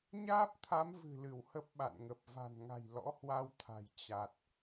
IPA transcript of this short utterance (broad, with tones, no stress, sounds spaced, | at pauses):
ɲ aː˦˥ p̚ t̪ʰ a˨˦ m v ɨ̤˨˩ l ɨ˧˩ w h ə˦˥ p̚ ɓ a̰˧˨ n ŋ ə˨˩ p̚ v a̤˨˩ n ŋ a̤˨˩ j l ɔ̰˧˥ h w a˧ w t̪ʰ a̤˨˩ j t͡ɕ a˨˩ t̚